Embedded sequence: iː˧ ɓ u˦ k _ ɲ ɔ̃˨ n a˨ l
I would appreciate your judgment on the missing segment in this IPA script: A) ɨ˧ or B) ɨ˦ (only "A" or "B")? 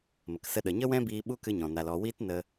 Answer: A